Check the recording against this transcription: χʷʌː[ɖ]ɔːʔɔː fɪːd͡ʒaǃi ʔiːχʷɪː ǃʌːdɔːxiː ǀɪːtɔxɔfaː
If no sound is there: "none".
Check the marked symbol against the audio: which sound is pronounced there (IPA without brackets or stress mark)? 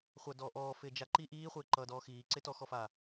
d